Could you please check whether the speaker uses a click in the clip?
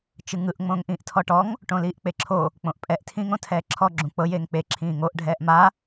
yes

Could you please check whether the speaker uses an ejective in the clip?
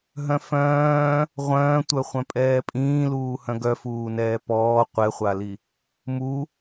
yes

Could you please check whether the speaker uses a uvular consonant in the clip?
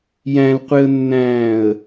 yes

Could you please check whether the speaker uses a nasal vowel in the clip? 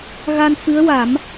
no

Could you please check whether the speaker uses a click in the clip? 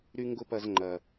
yes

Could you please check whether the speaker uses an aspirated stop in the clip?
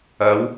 no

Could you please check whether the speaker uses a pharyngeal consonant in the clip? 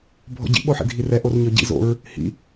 yes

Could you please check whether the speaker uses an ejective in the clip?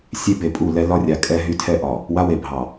yes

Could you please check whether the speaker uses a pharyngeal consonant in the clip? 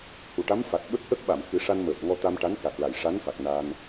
no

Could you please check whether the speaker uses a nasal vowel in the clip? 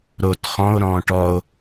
yes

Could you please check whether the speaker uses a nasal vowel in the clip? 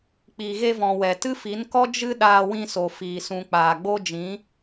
yes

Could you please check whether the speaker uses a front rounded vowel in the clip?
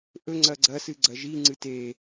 no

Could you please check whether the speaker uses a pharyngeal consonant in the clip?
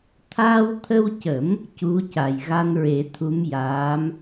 no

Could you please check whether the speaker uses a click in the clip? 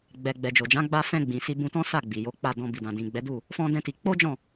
no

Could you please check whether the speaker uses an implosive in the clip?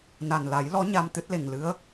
no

